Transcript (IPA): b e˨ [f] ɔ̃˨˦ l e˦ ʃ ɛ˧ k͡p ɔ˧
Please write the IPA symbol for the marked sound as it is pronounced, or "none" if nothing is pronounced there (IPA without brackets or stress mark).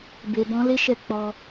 b